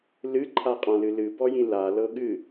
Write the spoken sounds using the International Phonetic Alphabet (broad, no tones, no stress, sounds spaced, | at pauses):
l ɨ ǃʰ a qʼ ã l ɨ l ɨ b ɔ j ĩ l a l ɤ ɠ ɨ